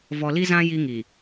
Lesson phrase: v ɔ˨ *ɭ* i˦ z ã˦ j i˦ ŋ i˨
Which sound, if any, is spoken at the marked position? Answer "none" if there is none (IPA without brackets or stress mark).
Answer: l